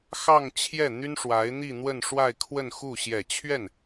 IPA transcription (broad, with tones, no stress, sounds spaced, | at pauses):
x ɑ˥˧ ŋ t͡ɕʰ j ɛ˥˩ n̪ y˥ n ʂ w a˧˥ ɪ̯ n̪ i˥˧ n̪ w ə˥˧ n ʂ w a˥˧ ɪ̯ kʰ w ə˥˧ n x u˥˩ ɕ j ɛ˨˩ t͡ɕʰ ɥ ɛ˥˩ n